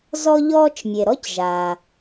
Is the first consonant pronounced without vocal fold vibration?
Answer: no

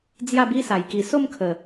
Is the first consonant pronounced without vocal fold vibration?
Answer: no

